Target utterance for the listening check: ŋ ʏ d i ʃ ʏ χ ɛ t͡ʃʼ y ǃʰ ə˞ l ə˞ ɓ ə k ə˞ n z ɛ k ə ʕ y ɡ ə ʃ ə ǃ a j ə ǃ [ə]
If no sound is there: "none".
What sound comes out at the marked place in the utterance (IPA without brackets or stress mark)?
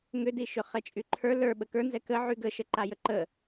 ə